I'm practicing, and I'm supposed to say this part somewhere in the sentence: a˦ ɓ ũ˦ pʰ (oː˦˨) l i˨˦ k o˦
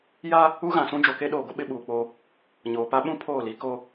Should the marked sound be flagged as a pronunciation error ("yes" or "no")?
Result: no